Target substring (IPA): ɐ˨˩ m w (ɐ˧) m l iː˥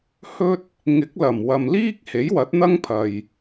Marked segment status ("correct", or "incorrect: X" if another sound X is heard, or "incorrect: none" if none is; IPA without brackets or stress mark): incorrect: ɐ˨